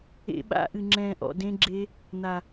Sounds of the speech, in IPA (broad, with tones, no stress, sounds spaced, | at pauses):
ḛ˦˥ ɓ a̰˦˥ ʔ ɨ˧ ŋ͡ǁ ɛ̃ː˧ ʔ ɔ̰˧ d ẽ˦˥ ɡ͡ǁ e˦˥ | n̪ a˧